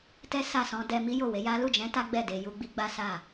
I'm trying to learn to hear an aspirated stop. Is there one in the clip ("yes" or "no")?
no